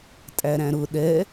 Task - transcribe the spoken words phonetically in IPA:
tʼæɾæ̃ɾʊ ɗɛ

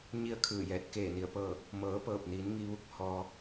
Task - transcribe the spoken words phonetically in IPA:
ɲi˥˨ə̯kʰɯː˧˩jɛː˧˩t̚ keː˧˩ ni˧˩ə̯pɤː˥˨ | mɤː˩˧pɤː˧˩p̚ niː˩˧nŋiː˧ʋu˧˥k̚ hɔː˧

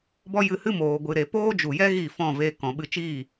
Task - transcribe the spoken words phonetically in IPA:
bɔ˦jɨ˧hɨ˦moː˨ ɡʷɨ˨ɾe˨ poː˦d͡ʒu˨jɛ˦ ɣi˦˨fɔ̃˦˨ve˧ kɔ̃˨ɓɨ˧t͡ʃiː˦˨

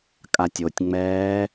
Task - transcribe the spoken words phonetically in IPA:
kʼatʲotʲŋ͡mɛː

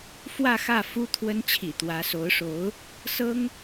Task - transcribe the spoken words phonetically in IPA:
fwä˥˧xä˥˩fu˥ t̪ʰwə˧˥nt͡ɕʰḭ˨˩ t̪wä˧˥so˧˥ʊ̯ʂo˧˥ʊ̯ | sɤ˥ŋ

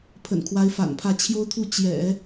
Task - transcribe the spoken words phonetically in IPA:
pʰə̰˨˩nkʰwa˧˥ɪ̯fa̰˨˩npʰä˥˩ t͡ɕʰjo˥ʊ̯t̪ʰu˥˩ t͡ɕjɛ̰˨˩˦

